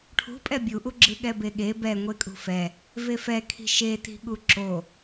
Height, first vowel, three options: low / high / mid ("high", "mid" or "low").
high